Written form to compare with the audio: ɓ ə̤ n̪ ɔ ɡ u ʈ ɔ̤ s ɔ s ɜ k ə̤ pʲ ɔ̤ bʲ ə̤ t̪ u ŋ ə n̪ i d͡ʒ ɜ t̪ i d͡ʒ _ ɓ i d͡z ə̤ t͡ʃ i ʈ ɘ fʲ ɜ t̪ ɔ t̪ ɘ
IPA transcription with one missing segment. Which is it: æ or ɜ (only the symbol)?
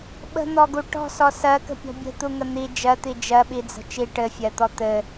ɜ